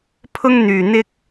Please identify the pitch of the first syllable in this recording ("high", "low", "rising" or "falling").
high